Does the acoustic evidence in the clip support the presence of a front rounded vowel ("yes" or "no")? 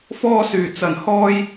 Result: yes